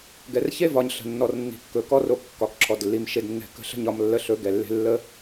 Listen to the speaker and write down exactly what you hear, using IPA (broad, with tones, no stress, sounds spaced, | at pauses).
ɡ ɛ˨ r ç e˦ v ɒ˨ ɲ ɬ ə̤˨ nː ɔ˨ r nː i̤˨ kː ɵ˨ k ɔ˧ r o˨ kː ɒ˨ k ǁʰ ɔ˨ d lː i˨ m ʃ e˨ d nː ɛ̤˨ k ə̤˨˦ ɬ ə̤˧ ɲ ɒ˧ m lː ə˧ ɬ ɵ˨˦ ɡ ɛ˨ lː e̤˧ lː ə˦